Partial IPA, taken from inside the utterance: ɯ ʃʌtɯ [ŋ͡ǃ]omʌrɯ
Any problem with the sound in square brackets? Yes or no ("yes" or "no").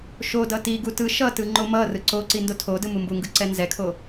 no